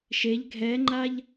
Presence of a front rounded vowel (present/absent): absent